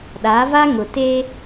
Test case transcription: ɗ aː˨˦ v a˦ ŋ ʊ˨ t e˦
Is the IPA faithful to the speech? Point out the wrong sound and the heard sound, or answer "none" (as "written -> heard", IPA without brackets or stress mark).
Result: none